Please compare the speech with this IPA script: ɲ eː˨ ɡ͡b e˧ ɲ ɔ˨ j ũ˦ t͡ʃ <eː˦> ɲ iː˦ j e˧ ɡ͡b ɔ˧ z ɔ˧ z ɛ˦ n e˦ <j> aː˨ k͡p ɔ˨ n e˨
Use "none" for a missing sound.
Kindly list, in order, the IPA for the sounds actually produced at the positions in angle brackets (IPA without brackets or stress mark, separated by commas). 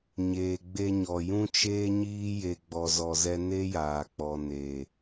eː˦, j